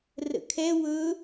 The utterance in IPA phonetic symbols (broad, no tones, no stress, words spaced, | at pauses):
rə̰kʰɛ wɵ